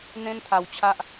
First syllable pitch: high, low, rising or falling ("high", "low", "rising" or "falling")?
high